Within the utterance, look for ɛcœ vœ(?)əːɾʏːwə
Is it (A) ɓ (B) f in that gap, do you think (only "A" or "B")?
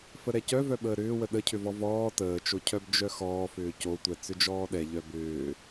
A